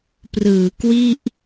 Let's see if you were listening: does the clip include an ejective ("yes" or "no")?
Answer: no